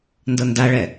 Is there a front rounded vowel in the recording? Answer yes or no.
no